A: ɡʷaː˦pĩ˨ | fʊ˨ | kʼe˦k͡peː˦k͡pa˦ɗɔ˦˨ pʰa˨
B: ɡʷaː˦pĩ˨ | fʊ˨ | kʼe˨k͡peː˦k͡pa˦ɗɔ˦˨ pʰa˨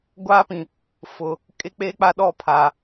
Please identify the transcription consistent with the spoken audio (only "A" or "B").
A